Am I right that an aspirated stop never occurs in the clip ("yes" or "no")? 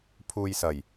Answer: no